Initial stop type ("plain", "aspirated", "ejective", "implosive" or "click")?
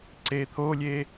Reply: click